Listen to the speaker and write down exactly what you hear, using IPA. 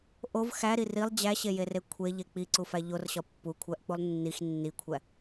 ʔ o v x æ ɾ i r i lˠ d͡ʑ æ ɕ e j e r e kʷʰ e ʎ e k͡p i ǀ u f æ ʎ o r ɕ ɒ pː u kʷʰ æ ʔ k͡p u lˠ nː i x nː i kʷʰ æ

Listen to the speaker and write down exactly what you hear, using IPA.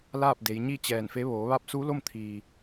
l aː˥˨ p̚ d e˩˧ j ɲ i˥˨ t͡ɕ ɛː˧˩ n f e˧˥ ʋ oː˩˧ ʋ a˧˥ p̚ s u˧˥ l o˥˨ m t̪ʰ iː˩

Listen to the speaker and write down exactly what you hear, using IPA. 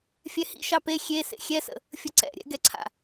fʲ ɛ h ḭ ʃ ɑ p e xʲ e s ḛ xʲ ɛ s ə̰ | fʲ ə ǀ ɛ̰ ɾʲ ɛ̰ ɡ ɛ ǀʰ a̰

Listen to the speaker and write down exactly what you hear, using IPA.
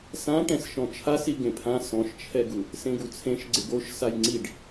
s ã ʈ ɛ̃ s ʃ ɔ̃ t͡ʃʰ a s i ɡ ẽ pʰ ã s ɔ̃ ʃ t͡ʃʰ ɛ ɡ u | s ẽ ɡ u t͡sʰ ẽ ʃ ɡ͡ǀ ɪ ɡ o ʃ s a j ŋ͡ǀ i ɖ

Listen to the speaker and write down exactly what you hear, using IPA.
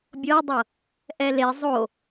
bʲ ɤ dˤ ɤ | ʔ ɛ l e zˤ o

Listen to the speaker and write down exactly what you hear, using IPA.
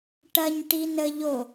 ʈ ɐ ɲ ʈ i n ə ʎ o

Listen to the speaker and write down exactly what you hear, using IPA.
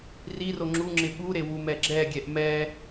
r i r o ŋ͡ǁ u ŋ͡ǁ ɪ ɓ u ɾ e w u m ɛ ɡ͡ǁ ɛ ɡʲ ɛ ʔ m ɛ

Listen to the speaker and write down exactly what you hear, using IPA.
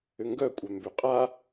ø ŋ ɡ œ kʷʼ œ m b ø qʼ a

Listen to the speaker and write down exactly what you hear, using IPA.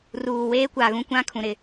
r uː˨ w eː˦ kʷ a˨ ɣ ũ˦ kʷ ã˦ kʰ ũ˨ ɾ ɪ˦˨

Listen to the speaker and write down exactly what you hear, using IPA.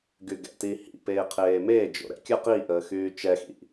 ɡ y ɡ ɛ̰ t i h ḭ p eː qʰ eː m e d͡ʒ o̰ ɾ ɛ̰ kʲ ə q i ʔ əː x yː t͡ʃ ɛ x ḭ

